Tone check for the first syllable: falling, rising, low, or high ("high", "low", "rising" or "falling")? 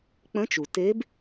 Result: rising